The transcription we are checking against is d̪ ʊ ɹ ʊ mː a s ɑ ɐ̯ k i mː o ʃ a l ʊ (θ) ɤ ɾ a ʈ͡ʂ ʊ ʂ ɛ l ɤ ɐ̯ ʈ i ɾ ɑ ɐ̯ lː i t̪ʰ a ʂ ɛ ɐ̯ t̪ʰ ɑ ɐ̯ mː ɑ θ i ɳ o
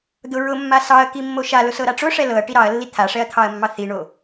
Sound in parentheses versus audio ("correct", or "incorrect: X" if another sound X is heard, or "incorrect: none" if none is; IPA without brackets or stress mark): incorrect: s